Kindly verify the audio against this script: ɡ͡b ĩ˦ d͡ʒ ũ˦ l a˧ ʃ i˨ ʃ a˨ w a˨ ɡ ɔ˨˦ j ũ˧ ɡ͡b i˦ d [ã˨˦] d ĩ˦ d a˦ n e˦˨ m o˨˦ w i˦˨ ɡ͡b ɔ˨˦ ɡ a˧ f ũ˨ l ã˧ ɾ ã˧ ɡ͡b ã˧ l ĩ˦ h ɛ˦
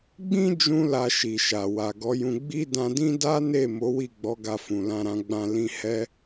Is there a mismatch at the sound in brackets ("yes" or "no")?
yes